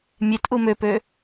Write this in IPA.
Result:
mʲetʔu møpø

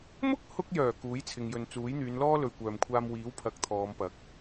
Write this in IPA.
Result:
mʊ˥k̚hʊ˧k̚jœː˨˩ kuː˨˥jt͡sʰɪ˨ŋjɵ˨n t͡suː˨˥jn̪yː˨˧nlɔː˥ lɵ˨ɥkʷœː˨mkʷʰaː˧m wiː˨˥w pʰɐ˨˥k̚t̪ʰɔː˨˧mpɐ˨˥k̚

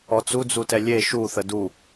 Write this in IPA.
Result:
ɔt͡sud͡zutɛ lʲe ʃuθə du

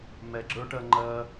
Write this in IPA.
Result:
mɛɡ͡ǁə˞ ʈɜŋ͡ǃɜ

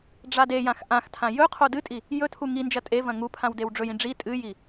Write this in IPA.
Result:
ɖ͡ʐadejãx ʔãxtʰã jɵqʰo dɨtʼi | jɵtʰu ŋind͡ʒɐ tʼevɐ̃ ŋupʰãw dewɖ͡ʐɵjĩ ɖ͡ʐi tʼɨji

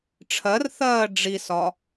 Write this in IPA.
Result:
ʈ͡ʂʰɜrθɜː ɖ͡ʐisɒ

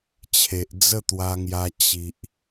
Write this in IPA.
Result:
t͡ɕʰe˨ʔd͡zə˥˧t̪wa˧ŋja˧ t͡ɕi˨ʔ

